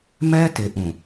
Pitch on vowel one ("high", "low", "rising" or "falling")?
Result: high